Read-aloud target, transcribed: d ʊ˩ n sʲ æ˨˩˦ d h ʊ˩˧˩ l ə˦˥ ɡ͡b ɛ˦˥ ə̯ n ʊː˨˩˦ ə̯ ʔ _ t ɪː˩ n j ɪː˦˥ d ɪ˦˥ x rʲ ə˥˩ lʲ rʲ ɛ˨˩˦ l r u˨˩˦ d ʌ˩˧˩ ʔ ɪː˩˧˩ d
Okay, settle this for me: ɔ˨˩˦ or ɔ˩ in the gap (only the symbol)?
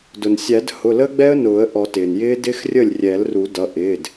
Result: ɔ˨˩˦